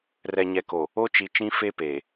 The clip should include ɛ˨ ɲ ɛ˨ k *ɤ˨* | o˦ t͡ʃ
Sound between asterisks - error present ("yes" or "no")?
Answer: yes